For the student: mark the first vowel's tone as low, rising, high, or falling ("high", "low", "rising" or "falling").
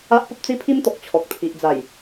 high